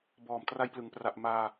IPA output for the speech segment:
bɔː˨˩mtra˧jplɯ˩˦ŋ pra˨˩ʔ maː˧

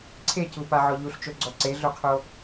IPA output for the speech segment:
ǀʰecupaʕɔ ʎuɬt͡ʃoɡ͡ǀɔ ǀeɮoqʰo

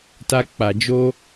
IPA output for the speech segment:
ta˧k͡pa˨ d͡ʒo˧

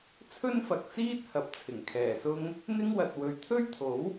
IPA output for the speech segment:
t͡sʰɵ˥nfɐ˨k̚t͡siː˥t̚ hɐ˨p̚t͡sʰɪ˨˩ŋkʰɛː˨˩sʊ˥ŋ | n̪ɪ˥ŋwɐ˨t̚ wɵ˨ɥt̪ʰɵ˥ɥt̪ʰo˨˥w

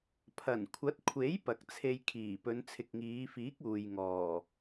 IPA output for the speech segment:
pʰɐ˨˩nkʷʰɐ˨˥t̚kʷʰe˨˥j pɐ˨k̚t͡sʰe˧jkʰiː˨˩ pɵ˨˧nt͡sʰɪ˨k̚ŋiː˨˧fiː˨˥k̚ uː˨jŋɔː˨˩

